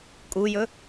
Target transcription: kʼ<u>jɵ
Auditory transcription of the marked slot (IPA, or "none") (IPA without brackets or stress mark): u